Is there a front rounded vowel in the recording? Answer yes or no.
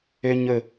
yes